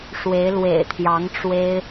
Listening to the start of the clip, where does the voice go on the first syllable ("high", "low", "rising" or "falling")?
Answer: rising